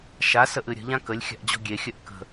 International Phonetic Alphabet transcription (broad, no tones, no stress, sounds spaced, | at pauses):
ʃ a s ə ʔ ɨ ɾʲ ə̤ ʎ ã k ə lʲ xʲ a̤ ʔ d͡ʑ ɔ̤ ɡʲ e xʲ œ ʔ k ə̤